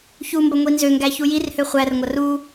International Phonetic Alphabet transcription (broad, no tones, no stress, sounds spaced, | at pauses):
ç u m b ɐ ŋʷ i n z ø ŋ ɡ æ ç u j i r h ø χʷ æ r ŋʷ ɐ r u